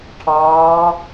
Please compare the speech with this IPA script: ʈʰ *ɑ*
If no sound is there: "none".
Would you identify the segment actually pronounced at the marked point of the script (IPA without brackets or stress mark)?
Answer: ɑː